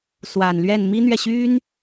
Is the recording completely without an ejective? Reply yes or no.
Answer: yes